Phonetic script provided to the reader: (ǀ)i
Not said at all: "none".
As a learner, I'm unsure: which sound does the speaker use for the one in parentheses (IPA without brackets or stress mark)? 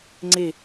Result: ŋ͡ǀ